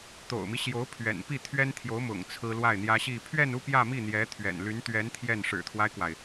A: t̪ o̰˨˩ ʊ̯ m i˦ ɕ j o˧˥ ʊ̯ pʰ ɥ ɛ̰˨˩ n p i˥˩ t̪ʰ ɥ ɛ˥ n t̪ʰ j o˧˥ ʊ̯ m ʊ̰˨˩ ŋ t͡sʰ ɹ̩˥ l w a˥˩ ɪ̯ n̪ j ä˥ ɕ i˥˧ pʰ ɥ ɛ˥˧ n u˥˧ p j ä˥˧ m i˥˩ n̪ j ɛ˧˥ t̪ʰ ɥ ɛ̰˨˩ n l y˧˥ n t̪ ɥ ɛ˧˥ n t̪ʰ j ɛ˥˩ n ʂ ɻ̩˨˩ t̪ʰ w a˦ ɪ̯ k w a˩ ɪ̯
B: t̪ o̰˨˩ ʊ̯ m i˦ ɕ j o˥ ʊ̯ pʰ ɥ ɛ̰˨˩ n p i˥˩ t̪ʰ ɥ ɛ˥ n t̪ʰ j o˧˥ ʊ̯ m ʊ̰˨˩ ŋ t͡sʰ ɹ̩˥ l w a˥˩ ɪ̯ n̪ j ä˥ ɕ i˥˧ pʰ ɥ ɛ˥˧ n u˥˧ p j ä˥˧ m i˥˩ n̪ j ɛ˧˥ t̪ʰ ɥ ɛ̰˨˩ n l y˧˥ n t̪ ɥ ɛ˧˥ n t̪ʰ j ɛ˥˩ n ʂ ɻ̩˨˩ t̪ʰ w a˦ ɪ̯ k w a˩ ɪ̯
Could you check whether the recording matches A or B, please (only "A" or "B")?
A